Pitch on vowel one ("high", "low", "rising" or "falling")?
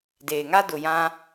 low